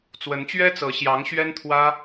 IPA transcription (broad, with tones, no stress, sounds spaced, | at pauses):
t͡s w ə˧˥ n t͡ɕ ɥ ɛ˥ t͡s ɤ˧˥ ɕ j ɑ˧˥ ŋ ɕ ɥ ɛ˥ n t̪ʰ w ä˥